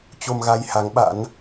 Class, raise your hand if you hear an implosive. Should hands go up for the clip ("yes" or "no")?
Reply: yes